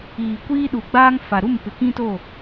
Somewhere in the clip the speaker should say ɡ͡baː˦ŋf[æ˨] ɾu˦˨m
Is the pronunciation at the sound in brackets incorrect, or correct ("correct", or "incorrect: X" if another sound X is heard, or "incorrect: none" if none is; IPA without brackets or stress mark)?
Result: incorrect: a˨